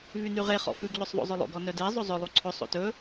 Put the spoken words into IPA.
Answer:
vynyʁe χɔ̰fʉɡ ʎɵsˤðˤo̰zˤɵlˠo̰ɡ ɔnœde zˤozˤɵ lˠuǀʰɵ sˤo̰tɵ

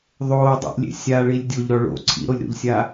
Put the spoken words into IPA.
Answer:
ðˤoːdˤḭʔlʲḛ sʲaɭilʲ dʲoʎɾɔ ɭo̰ ǀʰḭɾolʲɾo̰ʎsʲa

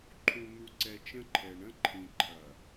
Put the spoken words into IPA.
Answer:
ǃʰũ˨n̪u˨ǀɛ˨ t͡ʃə̃˦ǃʰɛ˨ ɳə̃˦ǃʰĩ˨ǃʰɐ˨

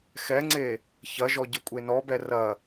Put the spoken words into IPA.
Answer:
xɛŋ͡ǀe | çɐʒɔ ɟɘkʷʼenɔbɛ rɐ

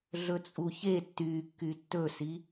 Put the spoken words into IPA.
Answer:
ɮɵt͡sʼuçe tːy kːytːɵsi

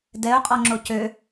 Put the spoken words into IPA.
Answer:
dɛʊ̯ qʼɔŋ͡ǁocø

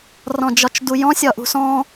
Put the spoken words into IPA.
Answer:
rɔ̃d͡ʒɒt͡ʃdujɔ̃ sʲɒʔṳsɔ̃

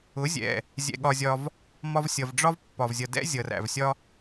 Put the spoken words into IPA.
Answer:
ʊ˨˦zʲɛ̰˨ | zʲɛ̰˧ɠɒ˧zʲɒ˧v | mɒ˧vsʲʌ˨vɖ͡ʐɒ˦v pːɒ˨vzʲʌ˨dɛ̰˦ zʲʌ˨ræ̰˨vsʲɒ˦

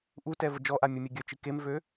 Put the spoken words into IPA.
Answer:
ʔutɛ vəd͡ʒɔʔa mʲɛmʲeɡʲœt͡ʃi kemvø

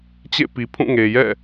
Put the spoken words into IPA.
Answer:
t͡ɕḛ˦˨ pi˨pʰũ˦˨ŋe˨jɛ̰˦˨

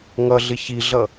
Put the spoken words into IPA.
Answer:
ŋʌɮɪ çiɮʌ

